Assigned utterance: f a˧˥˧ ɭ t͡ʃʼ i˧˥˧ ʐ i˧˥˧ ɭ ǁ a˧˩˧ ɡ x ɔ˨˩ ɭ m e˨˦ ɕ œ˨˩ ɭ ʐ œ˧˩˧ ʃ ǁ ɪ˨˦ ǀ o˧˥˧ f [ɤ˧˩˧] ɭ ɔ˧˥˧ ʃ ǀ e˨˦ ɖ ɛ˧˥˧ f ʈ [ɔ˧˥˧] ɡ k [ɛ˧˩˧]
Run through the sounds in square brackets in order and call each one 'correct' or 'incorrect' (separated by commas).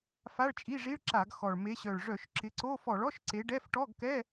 incorrect, correct, incorrect